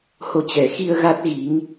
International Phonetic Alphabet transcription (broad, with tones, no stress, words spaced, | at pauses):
ho˨˦t͡ɕɛ˨˩xi˧ə̯ ɣa˦˥t̚ɣi˨˦ŋ